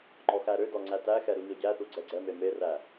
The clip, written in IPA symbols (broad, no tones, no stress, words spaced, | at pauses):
ŋ͡ǃɔxæɾødɔ ŋ͡ǀætæxɛ ɾuɲɔɟæθu ɡ͡ǀɛɡ͡ǀɛme meræ